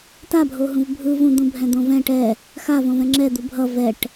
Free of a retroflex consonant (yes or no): no